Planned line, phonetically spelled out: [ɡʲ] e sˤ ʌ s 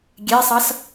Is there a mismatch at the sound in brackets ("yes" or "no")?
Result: no